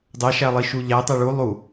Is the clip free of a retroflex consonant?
no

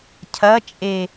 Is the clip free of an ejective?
no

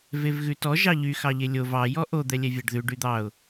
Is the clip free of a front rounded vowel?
no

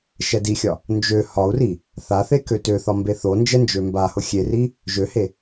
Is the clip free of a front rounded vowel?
no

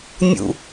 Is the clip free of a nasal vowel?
yes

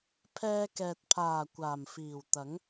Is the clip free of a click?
yes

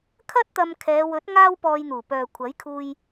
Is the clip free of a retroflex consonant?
yes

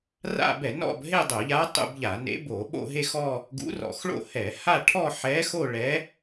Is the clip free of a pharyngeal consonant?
no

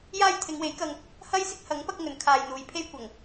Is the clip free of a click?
yes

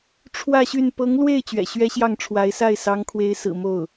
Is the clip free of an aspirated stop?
no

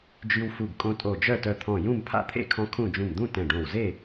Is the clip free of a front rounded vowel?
no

